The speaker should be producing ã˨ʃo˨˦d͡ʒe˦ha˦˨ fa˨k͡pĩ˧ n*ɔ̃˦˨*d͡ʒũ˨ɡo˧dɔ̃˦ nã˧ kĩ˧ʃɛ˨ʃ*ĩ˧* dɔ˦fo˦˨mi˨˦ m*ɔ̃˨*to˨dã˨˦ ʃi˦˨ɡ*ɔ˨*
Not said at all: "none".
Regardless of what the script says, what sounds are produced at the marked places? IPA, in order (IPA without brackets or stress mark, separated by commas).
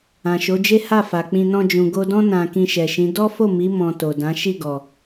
ɔ̃˧, ĩ˨˦, ɔ̃˧, ɔ˨